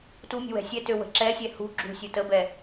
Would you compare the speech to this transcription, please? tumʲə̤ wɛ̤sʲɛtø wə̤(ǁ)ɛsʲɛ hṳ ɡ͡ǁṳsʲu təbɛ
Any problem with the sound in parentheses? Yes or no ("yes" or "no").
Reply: no